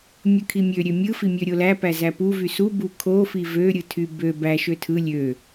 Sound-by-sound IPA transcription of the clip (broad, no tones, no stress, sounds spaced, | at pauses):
mʲ ɯ kʰ i mʲ ø ɾʲ ø mʲ ɯ f i mʲ ø ɾʲ o l æ p æ z æ p u v y s u b u kʰ o f i v ø ɾʲ ɯ tʰ y b ø b æ ʃ ø tʰ ɯ lʲ ø